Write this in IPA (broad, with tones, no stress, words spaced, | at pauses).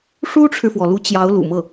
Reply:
ʂu˥ʈ͡ʂʰɻ̩˨fwɔ˩lu˧˥ t͡ɕjɑ˧˥ʊ̯lṵ˨˩mɤ˥˩